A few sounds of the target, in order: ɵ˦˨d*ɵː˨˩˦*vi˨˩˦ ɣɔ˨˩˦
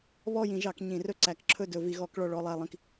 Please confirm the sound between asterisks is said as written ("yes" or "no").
no